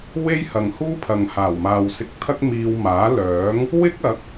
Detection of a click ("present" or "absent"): absent